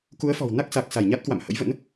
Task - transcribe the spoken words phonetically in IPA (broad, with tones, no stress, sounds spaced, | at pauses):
k u˨˦ ə̯ f ɔ̤˨˩ w n a˦˥ k̚ s a˨˩ k̚ s a˧˩ j ɲ a˦˥ t̚ k w a̰˧˨ m h ə̰˧˥ j v ə̰˧˥ n